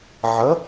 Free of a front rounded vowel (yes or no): yes